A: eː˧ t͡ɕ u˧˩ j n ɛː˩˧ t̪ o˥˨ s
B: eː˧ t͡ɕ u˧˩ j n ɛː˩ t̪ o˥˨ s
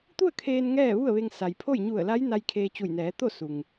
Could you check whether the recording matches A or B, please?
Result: A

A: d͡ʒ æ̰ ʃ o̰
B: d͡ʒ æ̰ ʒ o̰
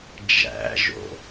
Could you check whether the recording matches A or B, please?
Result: B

